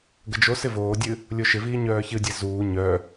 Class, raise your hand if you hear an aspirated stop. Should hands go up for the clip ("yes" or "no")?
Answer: no